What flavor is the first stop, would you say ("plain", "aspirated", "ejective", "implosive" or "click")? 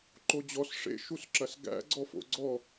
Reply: click